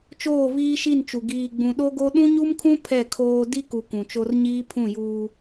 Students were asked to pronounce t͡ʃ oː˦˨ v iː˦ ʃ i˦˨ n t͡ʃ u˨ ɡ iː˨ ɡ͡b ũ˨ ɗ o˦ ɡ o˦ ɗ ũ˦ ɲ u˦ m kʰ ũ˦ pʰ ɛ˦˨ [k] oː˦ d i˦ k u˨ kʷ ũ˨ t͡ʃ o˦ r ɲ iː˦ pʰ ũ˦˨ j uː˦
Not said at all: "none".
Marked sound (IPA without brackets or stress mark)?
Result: kʰ